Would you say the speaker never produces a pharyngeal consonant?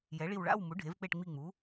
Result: yes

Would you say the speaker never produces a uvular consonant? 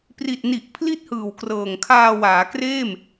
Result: yes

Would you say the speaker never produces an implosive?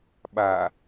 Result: no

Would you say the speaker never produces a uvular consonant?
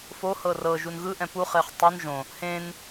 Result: no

